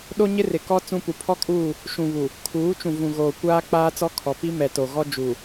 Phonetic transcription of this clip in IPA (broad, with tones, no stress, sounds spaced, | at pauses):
ɗ o˦ ɲ ɪ˦ r ɪ˨ k ɔ˦ t͡s ũ˦ p u˨ pʰ ɔ˦ kʼ uː˦˨ | ʃ ũ˨ β u˨ | kʰ uː˨˦ t͡ʃ ũ˨ v ũ˨ ɣ oː˨ kʷ aː˦ k͡p aː˦ t͡s ɔ˦ kʰ ɔ˨ p i˦ m ɛ˨ t o˨ ɣ ɔ˦ d͡ʒ u˨